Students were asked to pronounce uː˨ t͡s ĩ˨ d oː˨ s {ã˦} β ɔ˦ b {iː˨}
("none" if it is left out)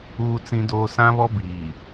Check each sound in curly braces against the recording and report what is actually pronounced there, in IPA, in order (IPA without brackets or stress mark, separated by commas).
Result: ã˦, iː˨